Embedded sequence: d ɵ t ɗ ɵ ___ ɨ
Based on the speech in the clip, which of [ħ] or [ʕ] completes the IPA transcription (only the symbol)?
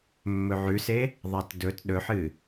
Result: ħ